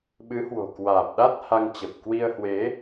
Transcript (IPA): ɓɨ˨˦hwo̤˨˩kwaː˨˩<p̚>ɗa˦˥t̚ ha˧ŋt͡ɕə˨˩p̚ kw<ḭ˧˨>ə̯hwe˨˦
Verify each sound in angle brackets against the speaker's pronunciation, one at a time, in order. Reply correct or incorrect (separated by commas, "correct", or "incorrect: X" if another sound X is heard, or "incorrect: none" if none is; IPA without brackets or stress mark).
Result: correct, incorrect: i˧